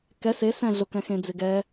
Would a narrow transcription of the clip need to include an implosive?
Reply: no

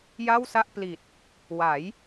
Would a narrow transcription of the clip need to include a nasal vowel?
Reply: no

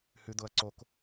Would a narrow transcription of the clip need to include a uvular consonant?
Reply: no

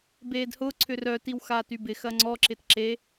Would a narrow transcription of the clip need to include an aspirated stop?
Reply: yes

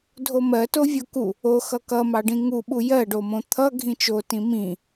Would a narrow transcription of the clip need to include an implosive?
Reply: yes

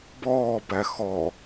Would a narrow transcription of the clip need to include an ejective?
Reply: no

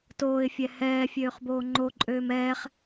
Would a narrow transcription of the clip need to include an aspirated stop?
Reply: no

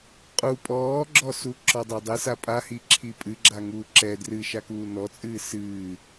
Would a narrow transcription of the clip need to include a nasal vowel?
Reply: no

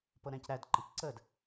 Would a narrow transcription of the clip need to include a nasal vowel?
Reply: yes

